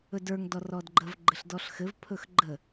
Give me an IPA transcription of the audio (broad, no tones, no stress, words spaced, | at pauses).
ɵdə˞ŋ dɔrɔdɡ͡ǃəv ɡ͡ǃɘɬdɔɬxɘv pʰɵxɡ͡ǃə